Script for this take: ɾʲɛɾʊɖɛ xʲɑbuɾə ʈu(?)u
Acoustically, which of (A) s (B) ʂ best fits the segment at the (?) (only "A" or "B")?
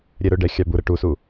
A